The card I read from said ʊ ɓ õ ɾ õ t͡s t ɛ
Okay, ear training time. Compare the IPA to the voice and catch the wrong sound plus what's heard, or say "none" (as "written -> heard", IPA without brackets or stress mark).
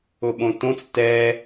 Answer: ɾ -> t